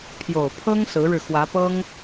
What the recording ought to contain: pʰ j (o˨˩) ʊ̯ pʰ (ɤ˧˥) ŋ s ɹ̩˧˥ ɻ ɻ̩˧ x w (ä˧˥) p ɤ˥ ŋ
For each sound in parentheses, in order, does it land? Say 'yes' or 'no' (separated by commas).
yes, no, yes